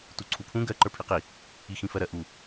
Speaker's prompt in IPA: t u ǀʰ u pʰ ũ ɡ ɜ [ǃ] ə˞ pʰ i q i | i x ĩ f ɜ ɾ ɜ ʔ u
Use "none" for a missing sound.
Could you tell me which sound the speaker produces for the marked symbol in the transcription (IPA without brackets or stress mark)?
ǃ